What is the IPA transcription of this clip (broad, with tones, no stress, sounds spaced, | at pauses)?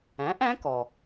æ̃˩˥ ʔ æ̃˧˥ k ɔ˩